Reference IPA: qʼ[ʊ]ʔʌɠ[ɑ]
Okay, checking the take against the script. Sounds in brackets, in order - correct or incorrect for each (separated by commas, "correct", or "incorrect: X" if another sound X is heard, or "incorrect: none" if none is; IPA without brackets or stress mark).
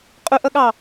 correct, correct